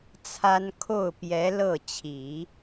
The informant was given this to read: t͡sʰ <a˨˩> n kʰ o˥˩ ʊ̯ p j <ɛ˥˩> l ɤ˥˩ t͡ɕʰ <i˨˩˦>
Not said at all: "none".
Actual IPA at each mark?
a˥, ɛ˧˥, i˨˩˦

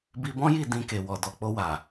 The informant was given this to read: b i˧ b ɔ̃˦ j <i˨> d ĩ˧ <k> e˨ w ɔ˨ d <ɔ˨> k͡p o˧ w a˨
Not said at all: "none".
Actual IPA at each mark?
i˦˨, k, ɔ˨

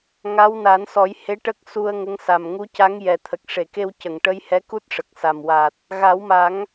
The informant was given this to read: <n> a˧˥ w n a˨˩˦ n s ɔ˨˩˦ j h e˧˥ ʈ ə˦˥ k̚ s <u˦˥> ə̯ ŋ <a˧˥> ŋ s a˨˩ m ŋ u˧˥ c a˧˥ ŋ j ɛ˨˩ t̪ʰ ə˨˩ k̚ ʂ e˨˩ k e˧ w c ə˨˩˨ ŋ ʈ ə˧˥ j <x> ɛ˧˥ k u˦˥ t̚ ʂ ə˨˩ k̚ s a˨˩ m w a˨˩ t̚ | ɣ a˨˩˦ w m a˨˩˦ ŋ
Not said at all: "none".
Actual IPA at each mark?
ŋ, u˧, ə˧˥, h

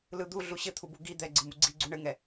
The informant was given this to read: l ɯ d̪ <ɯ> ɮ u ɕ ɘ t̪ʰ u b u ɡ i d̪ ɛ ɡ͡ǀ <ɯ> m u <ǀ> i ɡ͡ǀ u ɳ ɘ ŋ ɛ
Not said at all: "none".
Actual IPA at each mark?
u, ɯ, ɡ͡ǀ

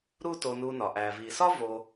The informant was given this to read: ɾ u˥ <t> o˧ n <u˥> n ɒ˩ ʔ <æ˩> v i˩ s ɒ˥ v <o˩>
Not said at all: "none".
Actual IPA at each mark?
t, u˧, æ˩, o˧

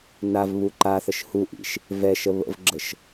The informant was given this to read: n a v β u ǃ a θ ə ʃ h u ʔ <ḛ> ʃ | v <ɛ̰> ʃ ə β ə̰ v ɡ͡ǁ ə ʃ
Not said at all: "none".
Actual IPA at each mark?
ḭ, ɛ

